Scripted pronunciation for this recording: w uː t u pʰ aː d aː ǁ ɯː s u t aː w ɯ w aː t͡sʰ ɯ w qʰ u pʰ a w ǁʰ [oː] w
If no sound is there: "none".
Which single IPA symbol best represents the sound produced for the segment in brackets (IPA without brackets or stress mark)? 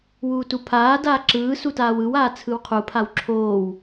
oː